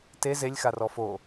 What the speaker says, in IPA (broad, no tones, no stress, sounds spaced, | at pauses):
t e z e lʲ x a r ɔ f o